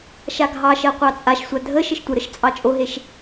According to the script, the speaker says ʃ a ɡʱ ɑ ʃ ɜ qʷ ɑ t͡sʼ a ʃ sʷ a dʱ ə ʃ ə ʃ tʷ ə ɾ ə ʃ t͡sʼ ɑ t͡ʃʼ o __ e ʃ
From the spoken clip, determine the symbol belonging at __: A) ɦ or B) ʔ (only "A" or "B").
A